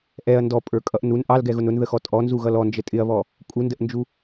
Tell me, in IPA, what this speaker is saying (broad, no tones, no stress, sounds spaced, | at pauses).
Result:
ʔ ɛ ɐ̯ n d ɔ pʼ ə˞ kʼ ʌ ʔ n u n ʔ ɑ l ɡ ɛ ɣ ʊ n ʊ n ð ə x ɔ tʼ ɔ n z u ɣ ʌ l ɔ n d͡ʒ ə tʼ ɪ ɐ̯ β ɔ | kʼ u n d ə ʔ n d͡ʒ u